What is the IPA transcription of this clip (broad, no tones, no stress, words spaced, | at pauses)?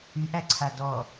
yʔæǀʰa dɔ